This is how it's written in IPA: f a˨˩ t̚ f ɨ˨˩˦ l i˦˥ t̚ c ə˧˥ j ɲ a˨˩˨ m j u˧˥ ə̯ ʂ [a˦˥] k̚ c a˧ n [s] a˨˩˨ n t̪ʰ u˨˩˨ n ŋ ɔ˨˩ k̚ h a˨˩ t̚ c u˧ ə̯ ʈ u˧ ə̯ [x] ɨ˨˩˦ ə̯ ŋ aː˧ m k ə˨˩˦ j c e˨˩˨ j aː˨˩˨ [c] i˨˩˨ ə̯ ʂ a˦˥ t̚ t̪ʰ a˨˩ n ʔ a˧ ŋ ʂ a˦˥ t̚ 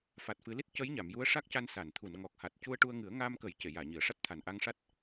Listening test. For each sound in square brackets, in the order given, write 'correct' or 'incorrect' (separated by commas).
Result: correct, correct, incorrect, incorrect